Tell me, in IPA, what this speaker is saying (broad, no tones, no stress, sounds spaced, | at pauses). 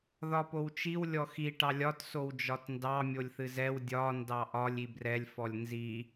ð ɒ p o w t͡ʃ i w lʲ ɔ x i ʈ ɑ lʲ ɒ t s o w d͡ʒ ɒ t n d ɑ mʲ o lʲ θ ɨ z ɛ w dʲ ɒ n d ɑ ʔ ɒ lʲ i b r ɛ lʲ f ɔ lʲ n z i